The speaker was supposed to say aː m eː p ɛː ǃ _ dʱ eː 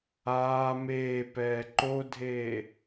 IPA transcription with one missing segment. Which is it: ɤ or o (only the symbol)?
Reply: o